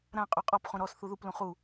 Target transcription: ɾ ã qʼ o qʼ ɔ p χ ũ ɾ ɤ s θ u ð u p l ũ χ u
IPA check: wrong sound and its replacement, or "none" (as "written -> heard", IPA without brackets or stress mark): ɤ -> ɔ